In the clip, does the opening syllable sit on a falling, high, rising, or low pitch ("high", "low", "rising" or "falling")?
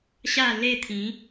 falling